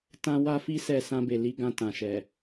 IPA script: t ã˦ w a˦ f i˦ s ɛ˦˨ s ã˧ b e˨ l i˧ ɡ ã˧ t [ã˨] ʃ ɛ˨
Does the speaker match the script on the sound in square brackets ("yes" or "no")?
yes